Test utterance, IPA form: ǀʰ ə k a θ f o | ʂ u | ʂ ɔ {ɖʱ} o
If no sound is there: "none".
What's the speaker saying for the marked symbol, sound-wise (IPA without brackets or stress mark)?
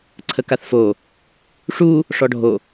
ɖʱ